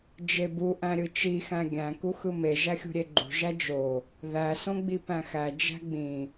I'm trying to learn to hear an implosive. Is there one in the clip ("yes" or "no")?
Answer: no